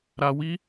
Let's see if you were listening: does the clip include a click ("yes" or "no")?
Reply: no